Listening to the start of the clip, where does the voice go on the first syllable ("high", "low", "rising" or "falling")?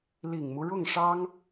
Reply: low